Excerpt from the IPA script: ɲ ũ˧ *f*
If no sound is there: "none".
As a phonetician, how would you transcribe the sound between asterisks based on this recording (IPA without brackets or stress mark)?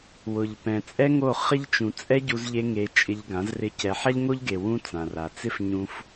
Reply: f